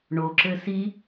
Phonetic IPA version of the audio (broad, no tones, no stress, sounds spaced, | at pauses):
ɳ o ǁ ɘ s i